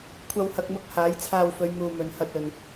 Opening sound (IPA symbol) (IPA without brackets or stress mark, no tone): kʷʰ